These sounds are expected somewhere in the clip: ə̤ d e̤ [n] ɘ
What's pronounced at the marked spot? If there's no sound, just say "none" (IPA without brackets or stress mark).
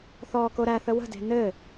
n